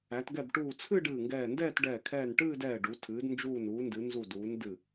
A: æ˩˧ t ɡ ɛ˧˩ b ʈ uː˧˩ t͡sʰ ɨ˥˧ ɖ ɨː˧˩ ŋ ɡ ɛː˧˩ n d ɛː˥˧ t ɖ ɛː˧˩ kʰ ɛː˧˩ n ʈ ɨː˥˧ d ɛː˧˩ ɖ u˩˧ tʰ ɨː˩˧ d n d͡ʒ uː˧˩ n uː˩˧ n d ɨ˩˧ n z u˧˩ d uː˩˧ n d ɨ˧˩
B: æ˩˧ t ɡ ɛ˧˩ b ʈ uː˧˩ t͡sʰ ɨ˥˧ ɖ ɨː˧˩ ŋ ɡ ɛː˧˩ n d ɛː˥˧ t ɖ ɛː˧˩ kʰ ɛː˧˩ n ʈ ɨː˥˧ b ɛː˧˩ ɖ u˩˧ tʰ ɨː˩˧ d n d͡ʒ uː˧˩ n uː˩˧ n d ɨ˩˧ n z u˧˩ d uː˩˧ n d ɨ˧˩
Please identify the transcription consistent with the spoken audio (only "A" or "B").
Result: A